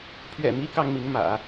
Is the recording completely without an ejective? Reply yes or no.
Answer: yes